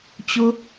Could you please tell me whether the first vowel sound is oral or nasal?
oral